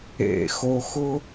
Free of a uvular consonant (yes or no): yes